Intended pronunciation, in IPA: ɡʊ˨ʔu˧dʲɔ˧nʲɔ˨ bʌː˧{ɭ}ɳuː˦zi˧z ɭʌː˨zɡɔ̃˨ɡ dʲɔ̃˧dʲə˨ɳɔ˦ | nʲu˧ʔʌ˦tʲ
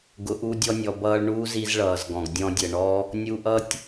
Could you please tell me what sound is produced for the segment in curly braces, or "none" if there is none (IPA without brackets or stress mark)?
ɭ